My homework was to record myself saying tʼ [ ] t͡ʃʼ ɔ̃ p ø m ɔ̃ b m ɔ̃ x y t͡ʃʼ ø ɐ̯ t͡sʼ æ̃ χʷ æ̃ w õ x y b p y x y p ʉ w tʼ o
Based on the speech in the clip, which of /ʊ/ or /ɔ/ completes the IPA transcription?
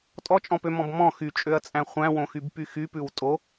ɔ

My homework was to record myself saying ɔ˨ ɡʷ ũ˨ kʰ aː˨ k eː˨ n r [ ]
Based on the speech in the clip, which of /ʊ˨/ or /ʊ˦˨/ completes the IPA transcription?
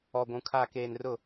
ʊ˦˨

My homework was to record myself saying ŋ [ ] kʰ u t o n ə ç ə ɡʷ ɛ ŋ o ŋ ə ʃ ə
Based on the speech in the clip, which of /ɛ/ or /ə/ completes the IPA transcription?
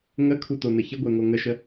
ə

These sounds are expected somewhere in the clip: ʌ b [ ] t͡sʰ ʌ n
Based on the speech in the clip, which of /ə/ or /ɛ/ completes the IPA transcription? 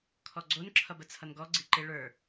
ə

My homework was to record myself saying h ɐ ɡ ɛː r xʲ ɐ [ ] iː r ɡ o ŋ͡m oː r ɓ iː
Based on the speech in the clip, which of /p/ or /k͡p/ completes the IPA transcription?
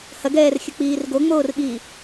k͡p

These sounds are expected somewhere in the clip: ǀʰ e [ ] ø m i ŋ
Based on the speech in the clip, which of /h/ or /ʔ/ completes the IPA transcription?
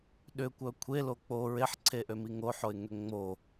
ʔ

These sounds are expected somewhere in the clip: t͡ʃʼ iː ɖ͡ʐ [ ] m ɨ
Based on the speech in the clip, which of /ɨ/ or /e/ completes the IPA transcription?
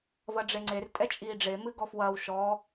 e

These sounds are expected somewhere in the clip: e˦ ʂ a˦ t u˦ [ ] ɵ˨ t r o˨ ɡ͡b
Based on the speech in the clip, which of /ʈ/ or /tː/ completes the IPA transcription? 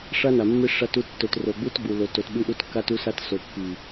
tː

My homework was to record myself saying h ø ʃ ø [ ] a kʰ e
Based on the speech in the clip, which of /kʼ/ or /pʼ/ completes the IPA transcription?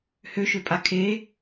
pʼ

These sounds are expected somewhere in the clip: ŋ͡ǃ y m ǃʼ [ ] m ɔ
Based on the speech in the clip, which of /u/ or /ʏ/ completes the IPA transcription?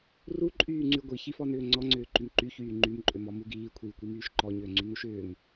ʏ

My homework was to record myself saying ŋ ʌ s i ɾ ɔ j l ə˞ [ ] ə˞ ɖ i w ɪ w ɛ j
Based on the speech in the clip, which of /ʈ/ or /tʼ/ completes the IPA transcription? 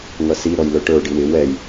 ʈ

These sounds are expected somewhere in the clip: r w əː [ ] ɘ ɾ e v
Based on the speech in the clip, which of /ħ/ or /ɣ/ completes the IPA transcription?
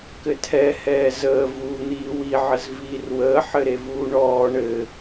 ħ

